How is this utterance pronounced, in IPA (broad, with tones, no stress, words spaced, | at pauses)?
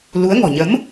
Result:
lu˨˦ə̯ ŋɔ̤˨˩ɲə˨˦m